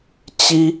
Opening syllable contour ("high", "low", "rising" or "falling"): high